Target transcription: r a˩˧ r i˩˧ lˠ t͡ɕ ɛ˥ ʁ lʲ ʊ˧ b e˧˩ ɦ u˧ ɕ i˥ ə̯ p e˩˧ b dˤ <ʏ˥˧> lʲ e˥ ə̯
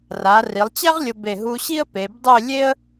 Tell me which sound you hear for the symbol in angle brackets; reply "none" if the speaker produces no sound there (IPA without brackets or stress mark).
ʏ˥˧